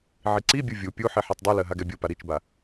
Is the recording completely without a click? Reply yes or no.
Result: no